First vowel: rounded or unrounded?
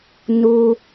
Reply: rounded